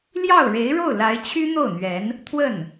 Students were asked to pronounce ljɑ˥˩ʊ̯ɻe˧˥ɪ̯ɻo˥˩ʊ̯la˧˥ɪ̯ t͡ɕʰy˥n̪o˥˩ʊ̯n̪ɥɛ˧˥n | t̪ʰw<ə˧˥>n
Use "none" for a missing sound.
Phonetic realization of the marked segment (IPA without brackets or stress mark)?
ə˥˩